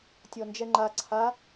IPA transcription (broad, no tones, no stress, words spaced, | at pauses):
tʲɔnd͡ʒɛŋ͡ǃa ǀʰa